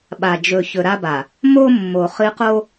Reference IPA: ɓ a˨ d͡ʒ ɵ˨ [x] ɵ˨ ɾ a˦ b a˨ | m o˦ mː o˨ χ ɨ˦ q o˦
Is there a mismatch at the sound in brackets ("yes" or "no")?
yes